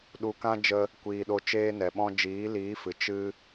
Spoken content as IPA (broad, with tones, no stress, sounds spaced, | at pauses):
ɗ u˨ k ã˦ d͡ʒ ə˦ | kʷ iː˨ ɗ o˧ t͡ʃ eː˦ n ɛ˨ ɓ ɔ̃˦ d͡ʒ iː˨˦ l iː˨˦ f ɨ˨ t͡ʃ ɨ˦